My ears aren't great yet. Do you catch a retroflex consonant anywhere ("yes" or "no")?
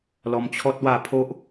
no